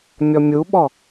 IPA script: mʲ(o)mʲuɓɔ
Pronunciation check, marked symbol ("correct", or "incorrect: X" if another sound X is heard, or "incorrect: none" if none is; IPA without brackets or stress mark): incorrect: ɔ